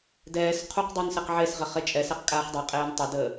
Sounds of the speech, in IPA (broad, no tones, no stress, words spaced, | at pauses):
dɛːs qʰuqdˤun sɛqʕesʁɘ χet͡ʃʼɛsɛq kʼaːχdˤeqʼeːn tˤədəː